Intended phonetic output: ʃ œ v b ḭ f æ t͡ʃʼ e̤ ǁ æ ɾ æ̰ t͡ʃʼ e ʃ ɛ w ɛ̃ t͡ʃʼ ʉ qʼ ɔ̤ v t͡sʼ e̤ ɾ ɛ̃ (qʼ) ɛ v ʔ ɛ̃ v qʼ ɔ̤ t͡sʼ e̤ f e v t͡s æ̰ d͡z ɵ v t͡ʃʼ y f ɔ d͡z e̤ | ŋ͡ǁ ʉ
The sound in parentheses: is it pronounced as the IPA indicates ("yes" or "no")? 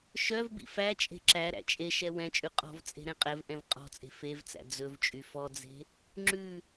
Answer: yes